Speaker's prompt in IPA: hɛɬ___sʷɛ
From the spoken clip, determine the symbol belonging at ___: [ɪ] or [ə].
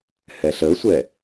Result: ə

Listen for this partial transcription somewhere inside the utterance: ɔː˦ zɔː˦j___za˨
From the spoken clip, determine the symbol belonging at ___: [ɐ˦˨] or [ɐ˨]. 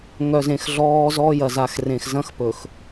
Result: ɐ˨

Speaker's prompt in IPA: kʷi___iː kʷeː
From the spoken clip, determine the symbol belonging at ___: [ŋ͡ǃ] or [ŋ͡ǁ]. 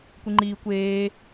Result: ŋ͡ǃ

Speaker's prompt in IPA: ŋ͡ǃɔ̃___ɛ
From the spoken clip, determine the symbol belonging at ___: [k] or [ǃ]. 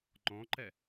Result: ǃ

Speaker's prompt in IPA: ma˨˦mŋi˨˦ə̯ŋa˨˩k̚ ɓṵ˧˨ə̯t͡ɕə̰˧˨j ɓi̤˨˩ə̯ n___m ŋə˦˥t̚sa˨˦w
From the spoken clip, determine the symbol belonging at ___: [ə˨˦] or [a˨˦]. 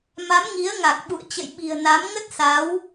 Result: a˨˦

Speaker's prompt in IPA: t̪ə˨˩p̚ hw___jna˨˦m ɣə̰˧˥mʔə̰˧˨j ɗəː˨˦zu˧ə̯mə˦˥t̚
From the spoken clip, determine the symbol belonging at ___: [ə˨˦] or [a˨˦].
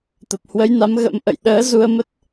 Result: ə˨˦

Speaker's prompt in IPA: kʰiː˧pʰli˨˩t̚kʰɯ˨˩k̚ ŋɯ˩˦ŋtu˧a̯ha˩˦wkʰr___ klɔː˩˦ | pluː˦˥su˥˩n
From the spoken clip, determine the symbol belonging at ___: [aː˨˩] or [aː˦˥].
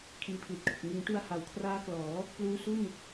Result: aː˦˥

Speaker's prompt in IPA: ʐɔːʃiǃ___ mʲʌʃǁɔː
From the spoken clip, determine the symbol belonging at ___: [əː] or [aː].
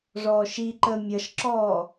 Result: əː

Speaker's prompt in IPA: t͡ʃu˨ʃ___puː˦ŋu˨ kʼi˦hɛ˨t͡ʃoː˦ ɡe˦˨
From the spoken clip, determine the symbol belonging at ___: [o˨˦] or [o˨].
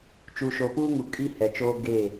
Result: o˨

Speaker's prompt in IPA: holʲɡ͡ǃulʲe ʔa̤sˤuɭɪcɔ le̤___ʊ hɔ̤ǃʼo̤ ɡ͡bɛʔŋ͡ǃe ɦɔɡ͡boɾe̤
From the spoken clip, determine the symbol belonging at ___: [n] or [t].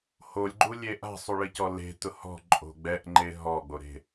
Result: t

